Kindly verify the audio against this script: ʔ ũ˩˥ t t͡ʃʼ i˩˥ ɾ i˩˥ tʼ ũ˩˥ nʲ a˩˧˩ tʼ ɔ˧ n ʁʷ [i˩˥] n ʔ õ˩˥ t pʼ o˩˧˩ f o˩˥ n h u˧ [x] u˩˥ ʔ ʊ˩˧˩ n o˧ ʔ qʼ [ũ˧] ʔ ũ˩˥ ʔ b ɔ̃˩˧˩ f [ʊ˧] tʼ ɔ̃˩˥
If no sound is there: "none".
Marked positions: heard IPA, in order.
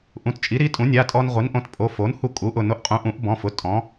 i˩˥, kʼ, ũ˩˥, ʊ˩˧˩

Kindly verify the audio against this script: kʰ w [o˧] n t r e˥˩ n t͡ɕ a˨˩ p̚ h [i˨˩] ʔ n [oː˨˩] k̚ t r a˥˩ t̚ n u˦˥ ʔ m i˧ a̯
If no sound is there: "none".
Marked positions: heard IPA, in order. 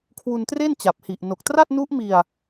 u˧, i˨˩, o˨˩

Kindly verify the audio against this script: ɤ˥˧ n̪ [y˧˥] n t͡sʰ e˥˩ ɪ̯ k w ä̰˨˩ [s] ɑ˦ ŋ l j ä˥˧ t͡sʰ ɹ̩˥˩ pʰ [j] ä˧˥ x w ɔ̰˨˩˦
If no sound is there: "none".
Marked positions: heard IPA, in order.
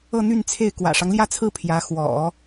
y˥˧, ʂ, j

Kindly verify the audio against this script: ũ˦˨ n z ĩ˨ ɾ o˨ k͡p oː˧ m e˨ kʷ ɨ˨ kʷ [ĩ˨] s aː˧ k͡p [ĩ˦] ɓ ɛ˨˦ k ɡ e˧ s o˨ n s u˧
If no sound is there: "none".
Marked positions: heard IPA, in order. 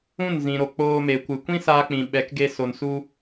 ĩ˦, ĩ˨

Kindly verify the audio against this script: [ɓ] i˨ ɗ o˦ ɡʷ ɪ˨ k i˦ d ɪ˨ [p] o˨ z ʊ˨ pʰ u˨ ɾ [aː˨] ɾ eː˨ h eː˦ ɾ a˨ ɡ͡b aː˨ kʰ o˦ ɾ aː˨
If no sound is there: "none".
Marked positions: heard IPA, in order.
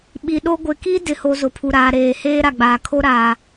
ɓ, h, aː˨

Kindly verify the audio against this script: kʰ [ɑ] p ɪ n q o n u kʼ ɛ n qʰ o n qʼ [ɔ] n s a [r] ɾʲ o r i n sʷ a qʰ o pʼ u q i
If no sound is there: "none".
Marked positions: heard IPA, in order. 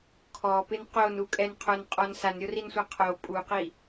ɔ, ɔ, n

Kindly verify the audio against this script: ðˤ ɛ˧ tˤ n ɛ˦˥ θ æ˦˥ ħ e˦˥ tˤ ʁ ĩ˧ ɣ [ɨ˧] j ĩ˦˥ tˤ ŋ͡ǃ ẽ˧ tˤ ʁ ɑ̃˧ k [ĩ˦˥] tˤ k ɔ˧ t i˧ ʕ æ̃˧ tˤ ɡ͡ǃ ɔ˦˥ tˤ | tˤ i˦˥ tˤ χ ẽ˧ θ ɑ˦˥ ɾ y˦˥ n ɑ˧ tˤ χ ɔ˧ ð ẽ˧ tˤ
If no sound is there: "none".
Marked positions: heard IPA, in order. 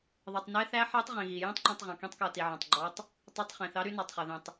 i˧, ĩ˦˥

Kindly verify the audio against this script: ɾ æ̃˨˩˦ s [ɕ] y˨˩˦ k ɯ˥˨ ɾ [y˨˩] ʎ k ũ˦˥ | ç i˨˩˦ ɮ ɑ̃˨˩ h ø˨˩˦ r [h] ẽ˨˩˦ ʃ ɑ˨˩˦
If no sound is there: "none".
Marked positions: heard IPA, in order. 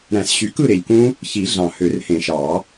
ɕ, e˨˩, h

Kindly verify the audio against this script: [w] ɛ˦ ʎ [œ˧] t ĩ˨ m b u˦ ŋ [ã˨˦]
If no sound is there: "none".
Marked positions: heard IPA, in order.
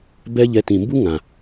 b, ɛ˧, ã˨

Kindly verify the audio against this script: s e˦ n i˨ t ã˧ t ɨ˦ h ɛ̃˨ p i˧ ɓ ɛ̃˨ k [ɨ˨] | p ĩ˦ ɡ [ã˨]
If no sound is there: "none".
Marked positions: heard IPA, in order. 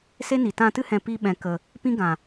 ə˨, ã˨

